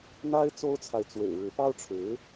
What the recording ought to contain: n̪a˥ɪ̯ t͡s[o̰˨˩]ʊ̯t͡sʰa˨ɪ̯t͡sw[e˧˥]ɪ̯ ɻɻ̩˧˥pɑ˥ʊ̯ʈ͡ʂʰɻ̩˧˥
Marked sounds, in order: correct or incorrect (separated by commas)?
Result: incorrect, incorrect